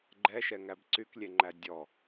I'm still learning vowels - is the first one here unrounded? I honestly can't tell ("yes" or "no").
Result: yes